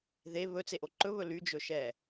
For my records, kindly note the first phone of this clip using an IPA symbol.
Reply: ð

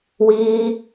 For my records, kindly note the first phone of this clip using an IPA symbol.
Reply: w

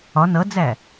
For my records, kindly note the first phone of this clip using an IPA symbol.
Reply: ɒ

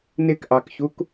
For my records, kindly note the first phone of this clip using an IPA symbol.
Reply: n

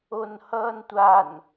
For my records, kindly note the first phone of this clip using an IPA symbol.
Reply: o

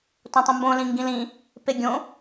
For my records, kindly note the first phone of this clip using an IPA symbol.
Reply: t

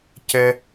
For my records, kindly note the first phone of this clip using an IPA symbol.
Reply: c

